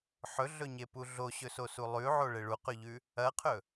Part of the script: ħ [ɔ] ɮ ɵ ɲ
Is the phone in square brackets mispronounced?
yes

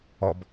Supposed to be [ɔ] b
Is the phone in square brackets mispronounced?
no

